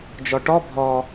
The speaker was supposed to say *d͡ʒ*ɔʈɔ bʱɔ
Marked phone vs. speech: correct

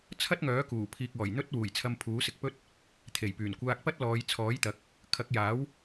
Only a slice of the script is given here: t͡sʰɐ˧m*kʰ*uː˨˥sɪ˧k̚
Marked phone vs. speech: incorrect: pʰ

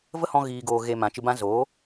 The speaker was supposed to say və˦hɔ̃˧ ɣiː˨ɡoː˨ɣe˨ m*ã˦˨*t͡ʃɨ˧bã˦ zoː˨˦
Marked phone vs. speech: incorrect: ã˨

